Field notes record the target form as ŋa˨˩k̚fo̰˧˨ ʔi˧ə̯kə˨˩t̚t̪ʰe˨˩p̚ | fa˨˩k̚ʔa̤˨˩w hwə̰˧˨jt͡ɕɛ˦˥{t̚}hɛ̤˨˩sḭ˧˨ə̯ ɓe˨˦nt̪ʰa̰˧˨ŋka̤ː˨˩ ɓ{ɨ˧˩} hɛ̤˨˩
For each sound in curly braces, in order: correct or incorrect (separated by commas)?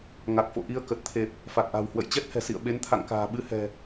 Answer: correct, incorrect